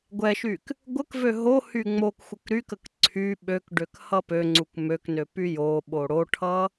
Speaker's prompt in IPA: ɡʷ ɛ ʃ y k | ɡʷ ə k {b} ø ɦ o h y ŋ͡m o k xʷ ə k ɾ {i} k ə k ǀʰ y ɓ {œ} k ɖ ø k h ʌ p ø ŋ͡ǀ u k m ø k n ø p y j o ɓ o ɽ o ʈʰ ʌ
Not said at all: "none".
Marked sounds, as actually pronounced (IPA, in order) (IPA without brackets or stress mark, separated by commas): v, y, ø